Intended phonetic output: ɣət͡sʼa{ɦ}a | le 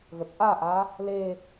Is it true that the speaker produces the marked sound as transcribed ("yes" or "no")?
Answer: no